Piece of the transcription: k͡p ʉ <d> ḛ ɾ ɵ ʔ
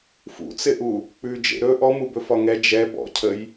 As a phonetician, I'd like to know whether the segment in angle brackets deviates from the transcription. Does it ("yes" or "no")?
yes